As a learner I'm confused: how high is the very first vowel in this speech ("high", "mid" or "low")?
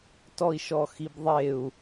mid